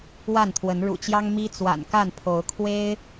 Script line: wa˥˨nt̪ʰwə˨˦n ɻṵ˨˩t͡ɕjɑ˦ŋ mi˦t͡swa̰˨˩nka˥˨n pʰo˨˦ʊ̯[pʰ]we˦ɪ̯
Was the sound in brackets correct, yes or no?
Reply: no